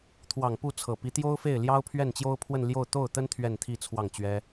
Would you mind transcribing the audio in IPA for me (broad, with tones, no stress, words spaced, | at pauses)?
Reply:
t̪ʰwɑ˨˩ŋ pu˥˩t͡sʰɤ˨˩ pi˧˥t̪jo˥ʊ̯fe˥˩ɪ̯ ljɑ˥ʊ̯pʰɥɛ˥˩nt͡ɕjo˥ʊ̯pʰwə˥˧n ljo˥˧ʊ̯ t̪o˥˩ʊ̯t̪ə˥n t̪ʰɥɛ˥˧nt̪ʰi˥˧ t͡sʰwɑ˥˩ŋt͡ɕɥɛ˥